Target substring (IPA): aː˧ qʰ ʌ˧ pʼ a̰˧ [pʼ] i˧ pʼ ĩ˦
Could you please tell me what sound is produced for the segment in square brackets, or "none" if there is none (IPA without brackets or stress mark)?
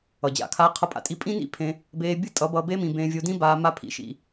tʼ